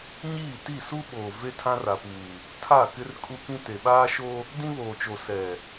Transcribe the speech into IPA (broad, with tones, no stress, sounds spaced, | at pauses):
ɲ iː˦˨ t i˦˨ s u˦ ɓ oː˨ v e˦ tʰ ã˦ r a˨ p uː˨ | tʰ a˦˨ k ɪ˦ r kʼ u˦ k ĩ˦ t e˨ ɓ aː˦ ʃ o˦ | d ĩ˦ β oː˨ t͡ʃ o˨ s ɛ˨